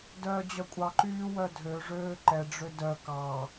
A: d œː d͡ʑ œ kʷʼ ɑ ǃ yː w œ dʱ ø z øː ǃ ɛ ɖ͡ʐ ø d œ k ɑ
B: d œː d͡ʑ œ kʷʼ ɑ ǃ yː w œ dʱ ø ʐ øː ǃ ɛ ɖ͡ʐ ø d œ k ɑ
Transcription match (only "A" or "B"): B